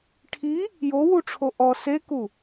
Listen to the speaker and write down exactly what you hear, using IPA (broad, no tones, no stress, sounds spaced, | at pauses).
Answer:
ʈʰ i | j o w u ʈ͡ʂʰ o ʔ ɔ s e k u